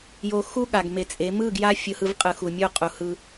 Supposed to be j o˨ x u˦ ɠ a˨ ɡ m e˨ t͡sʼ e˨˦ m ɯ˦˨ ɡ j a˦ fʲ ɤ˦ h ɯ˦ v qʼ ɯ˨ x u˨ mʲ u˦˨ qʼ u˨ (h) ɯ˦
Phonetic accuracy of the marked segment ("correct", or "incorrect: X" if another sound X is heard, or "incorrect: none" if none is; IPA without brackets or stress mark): correct